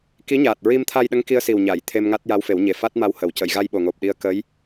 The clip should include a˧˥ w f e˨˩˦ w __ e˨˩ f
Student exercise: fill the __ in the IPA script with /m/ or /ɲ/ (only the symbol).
ɲ